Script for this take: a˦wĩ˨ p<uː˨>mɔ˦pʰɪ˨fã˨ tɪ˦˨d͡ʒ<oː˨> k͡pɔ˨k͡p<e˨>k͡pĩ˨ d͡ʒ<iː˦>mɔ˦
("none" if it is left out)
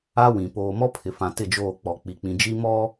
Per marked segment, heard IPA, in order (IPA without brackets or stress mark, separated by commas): oː˨, oː˦˨, i˨, i˦